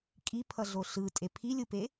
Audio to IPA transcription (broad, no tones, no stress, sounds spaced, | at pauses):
kʼ i pʰ ʌ ɮ o ɬ ɯ tʼ e pʰ i lʲ ɯ p e